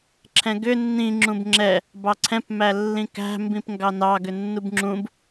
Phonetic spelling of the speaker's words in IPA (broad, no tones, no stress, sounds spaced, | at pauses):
ǁʰ ɛ̃ ɡ ʏ nː ĩ ŋ͡ǁ ũ b ŋ͡ǁ ɛ | b ɑ ǀʰ ɛ̃ p m æ lː ĩ k æ̤ m b ĩ p ŋ ɡ ɑ n ɑ ɡ ʏ nː u b ŋ͡ǁ ũ b